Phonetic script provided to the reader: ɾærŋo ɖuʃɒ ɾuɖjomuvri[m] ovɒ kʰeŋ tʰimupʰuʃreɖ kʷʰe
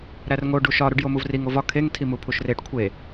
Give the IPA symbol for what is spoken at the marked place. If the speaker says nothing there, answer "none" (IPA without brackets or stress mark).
ŋ